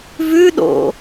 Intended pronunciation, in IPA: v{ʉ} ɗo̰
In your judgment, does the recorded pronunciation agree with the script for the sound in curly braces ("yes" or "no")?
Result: yes